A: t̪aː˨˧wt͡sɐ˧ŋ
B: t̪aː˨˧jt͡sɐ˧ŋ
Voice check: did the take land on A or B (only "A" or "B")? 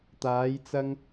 B